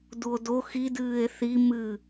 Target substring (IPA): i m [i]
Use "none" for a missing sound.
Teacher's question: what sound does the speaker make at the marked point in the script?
ɨ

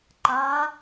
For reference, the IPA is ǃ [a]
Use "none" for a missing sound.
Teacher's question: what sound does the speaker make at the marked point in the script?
a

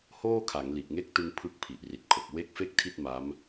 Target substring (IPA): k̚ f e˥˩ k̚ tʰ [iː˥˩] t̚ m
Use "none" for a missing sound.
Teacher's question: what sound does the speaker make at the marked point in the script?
i˥˩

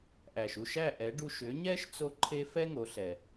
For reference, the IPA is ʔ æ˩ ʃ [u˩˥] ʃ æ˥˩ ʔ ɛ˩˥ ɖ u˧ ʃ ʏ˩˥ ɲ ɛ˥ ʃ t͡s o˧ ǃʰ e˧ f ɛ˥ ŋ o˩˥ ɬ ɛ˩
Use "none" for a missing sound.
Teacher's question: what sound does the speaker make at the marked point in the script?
u˥˩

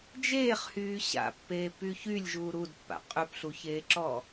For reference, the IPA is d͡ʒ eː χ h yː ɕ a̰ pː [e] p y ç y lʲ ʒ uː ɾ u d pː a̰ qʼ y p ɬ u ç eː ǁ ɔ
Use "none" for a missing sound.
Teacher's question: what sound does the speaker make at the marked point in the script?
eː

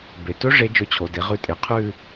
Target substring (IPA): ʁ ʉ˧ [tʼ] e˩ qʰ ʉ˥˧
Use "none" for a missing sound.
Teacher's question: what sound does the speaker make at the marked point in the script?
tʼ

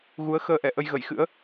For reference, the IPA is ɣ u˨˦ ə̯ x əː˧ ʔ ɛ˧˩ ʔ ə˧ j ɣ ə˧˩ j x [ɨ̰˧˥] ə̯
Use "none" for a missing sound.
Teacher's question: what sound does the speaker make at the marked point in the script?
ɨ̰˧˥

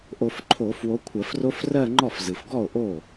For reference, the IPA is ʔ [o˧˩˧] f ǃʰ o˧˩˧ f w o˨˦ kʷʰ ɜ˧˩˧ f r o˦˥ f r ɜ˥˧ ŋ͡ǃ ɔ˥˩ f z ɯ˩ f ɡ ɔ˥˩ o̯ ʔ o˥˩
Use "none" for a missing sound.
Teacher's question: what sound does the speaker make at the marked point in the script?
o˧˩˧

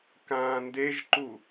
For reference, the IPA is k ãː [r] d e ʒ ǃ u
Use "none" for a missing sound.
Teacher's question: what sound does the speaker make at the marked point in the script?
n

